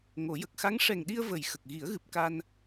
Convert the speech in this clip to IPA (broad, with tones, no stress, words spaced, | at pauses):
ŋo˨˩˦ jə˨˩k̚xa˧˥ŋ ʂɛ˨˩ŋɗi˧ə̯ və˨˩j xə˨˩k̚ ɣi˨˩˦ə̯ɣɨ˨˩p̚ ka˧n